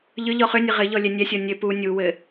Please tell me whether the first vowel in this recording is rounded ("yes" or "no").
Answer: yes